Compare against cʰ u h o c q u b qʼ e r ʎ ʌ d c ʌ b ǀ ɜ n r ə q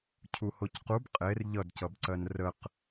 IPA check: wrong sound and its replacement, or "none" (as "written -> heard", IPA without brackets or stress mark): none